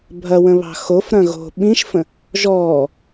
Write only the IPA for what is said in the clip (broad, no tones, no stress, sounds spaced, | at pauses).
bʱ ɐ w ə̃ β ɑ̤ x o f ɾ ɐ̃ ɣ o̤ ɓ ĩ ʃ f ə̃ | ʒ ɔː